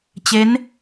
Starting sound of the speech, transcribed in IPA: t͡ɕ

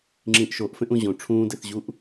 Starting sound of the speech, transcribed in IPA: ŋ͡ǁ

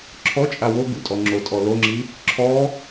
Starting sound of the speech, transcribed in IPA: ǁʰ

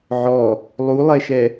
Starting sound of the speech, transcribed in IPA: ʕ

